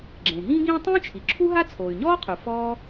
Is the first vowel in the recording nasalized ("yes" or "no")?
yes